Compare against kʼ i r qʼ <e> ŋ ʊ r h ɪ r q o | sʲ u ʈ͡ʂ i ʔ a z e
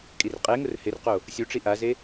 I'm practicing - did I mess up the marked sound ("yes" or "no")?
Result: no